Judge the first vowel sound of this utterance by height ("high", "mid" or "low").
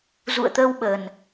high